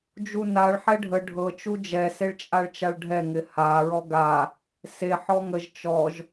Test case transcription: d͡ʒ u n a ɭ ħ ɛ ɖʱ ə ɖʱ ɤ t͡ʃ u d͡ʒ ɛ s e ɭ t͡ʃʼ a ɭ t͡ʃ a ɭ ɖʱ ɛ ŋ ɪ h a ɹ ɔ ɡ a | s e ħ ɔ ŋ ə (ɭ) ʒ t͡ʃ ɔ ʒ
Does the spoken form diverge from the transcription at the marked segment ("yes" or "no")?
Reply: yes